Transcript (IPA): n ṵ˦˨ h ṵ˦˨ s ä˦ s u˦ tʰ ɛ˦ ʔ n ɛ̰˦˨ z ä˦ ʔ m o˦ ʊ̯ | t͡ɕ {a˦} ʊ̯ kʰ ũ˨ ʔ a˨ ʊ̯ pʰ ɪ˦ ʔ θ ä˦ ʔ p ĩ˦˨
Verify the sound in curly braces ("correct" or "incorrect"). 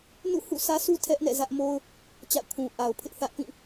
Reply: incorrect